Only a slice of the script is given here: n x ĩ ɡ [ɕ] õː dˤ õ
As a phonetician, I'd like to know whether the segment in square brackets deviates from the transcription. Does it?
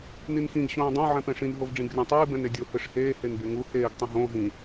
no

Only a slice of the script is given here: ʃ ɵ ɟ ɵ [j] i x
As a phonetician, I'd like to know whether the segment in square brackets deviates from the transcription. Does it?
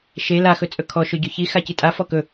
yes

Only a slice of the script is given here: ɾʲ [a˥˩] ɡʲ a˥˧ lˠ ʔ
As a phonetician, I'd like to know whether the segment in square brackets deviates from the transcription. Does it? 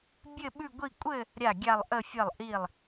no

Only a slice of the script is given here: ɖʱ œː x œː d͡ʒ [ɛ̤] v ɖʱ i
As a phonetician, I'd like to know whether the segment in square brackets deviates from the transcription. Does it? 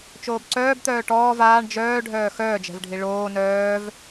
no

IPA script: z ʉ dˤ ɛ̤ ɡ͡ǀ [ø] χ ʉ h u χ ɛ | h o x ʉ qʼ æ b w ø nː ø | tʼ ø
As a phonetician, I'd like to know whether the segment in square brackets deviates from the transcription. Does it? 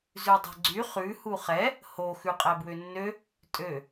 yes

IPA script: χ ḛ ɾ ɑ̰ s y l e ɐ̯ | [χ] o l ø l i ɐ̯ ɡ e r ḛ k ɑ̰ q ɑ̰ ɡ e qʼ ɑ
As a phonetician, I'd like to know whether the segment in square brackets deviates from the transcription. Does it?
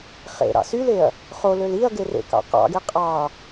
no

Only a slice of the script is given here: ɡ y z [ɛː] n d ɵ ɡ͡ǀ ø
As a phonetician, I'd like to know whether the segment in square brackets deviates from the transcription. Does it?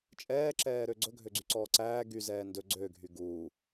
no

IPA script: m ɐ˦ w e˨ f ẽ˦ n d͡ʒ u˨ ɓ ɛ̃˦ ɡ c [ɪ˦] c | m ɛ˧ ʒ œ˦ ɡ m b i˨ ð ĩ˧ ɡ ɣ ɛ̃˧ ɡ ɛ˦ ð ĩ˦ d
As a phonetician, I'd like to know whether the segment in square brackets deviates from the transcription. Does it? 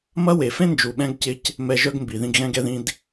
no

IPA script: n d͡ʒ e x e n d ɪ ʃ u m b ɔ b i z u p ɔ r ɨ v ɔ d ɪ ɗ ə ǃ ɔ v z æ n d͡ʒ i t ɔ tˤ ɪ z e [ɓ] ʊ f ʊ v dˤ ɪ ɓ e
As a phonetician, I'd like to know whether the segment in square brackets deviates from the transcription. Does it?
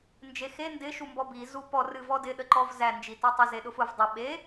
yes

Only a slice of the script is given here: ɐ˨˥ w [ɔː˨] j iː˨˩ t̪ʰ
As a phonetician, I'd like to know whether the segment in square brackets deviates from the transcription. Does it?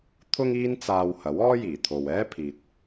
yes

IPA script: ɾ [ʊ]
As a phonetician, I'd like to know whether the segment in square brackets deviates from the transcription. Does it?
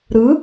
yes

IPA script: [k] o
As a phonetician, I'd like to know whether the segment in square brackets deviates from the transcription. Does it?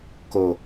no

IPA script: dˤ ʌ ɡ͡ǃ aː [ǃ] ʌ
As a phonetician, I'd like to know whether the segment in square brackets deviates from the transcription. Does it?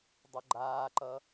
no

